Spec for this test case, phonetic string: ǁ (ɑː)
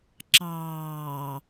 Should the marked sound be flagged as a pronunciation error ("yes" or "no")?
no